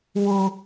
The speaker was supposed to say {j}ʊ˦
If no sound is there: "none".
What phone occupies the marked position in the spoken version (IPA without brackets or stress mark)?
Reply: w